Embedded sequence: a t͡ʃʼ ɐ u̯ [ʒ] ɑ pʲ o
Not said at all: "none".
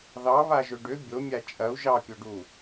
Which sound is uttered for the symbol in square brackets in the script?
ʒ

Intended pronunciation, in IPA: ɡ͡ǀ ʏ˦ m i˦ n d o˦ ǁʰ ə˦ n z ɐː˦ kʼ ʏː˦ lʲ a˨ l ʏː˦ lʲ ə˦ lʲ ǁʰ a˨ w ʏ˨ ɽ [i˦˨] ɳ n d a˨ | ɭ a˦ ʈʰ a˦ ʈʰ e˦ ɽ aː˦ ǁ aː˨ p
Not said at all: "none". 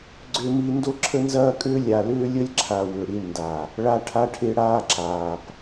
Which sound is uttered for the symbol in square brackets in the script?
i˦˨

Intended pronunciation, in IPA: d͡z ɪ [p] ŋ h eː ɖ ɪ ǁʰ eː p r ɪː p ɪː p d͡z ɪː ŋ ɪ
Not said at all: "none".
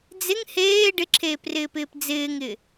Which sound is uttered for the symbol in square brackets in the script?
none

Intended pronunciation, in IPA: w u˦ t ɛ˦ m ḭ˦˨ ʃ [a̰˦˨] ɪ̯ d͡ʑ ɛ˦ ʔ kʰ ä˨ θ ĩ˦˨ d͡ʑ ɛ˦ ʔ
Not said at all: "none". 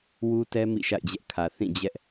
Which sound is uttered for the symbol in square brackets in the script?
a̰˦˨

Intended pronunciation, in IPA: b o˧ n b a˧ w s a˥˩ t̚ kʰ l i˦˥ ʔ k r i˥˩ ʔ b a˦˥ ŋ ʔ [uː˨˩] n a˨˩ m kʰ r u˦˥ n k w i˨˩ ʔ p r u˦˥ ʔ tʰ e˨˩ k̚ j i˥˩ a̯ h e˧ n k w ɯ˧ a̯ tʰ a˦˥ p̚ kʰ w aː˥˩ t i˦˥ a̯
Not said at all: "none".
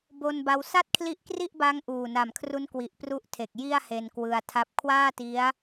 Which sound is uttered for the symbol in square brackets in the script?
uː˨˩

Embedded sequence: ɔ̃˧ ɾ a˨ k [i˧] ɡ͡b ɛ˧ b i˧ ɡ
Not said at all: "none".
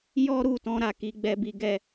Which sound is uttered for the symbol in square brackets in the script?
i˨˦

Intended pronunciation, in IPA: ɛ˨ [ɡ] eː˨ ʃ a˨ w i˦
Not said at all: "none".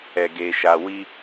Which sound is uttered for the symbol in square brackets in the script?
ɡ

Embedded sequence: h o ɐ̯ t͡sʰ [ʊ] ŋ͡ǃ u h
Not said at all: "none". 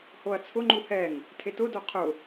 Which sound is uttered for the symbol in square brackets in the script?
ʊ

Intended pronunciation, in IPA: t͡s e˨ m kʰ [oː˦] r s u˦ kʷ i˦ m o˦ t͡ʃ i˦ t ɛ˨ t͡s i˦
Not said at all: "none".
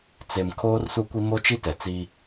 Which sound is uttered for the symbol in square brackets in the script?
oː˦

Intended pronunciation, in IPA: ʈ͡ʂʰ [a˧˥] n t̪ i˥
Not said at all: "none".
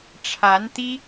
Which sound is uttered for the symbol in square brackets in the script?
a˧˥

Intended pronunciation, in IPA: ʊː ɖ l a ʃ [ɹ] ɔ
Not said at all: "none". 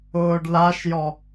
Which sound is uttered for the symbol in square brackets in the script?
j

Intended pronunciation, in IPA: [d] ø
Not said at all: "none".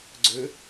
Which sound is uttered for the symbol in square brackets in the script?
ɡ͡ǀ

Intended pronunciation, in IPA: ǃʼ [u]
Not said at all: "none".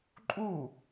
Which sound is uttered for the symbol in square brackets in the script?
u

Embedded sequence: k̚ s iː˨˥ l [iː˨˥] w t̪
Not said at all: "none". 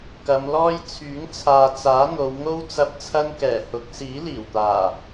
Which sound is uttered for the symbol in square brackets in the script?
iː˨˩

